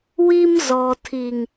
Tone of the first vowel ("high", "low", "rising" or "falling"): high